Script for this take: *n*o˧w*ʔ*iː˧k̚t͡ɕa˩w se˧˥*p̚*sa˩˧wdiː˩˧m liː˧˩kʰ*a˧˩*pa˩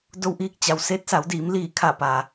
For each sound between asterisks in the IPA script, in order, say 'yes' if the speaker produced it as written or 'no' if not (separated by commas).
no, yes, no, yes